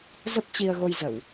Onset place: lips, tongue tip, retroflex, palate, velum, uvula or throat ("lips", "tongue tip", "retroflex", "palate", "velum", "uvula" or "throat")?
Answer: tongue tip